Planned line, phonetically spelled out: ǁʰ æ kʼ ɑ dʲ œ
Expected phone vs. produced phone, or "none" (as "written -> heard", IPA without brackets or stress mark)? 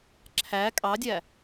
œ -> æ